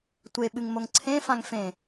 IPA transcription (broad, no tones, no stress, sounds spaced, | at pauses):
tʷ e ɓ ɨ ŋ m o ŋ ǀʰ ẽ f ã ŋ f ẽ